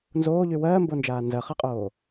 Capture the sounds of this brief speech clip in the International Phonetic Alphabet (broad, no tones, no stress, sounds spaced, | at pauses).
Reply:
n z oː ʎ y w ɜː m b o n d͡ʒ aː n z ɜ χ ɜ qʼ oː